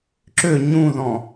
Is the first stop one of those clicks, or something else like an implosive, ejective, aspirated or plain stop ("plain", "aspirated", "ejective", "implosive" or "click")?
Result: click